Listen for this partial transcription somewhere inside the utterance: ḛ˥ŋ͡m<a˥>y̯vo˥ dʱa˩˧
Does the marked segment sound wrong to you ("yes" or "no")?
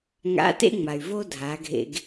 yes